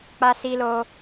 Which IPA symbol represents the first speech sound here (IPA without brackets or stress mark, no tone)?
k͡p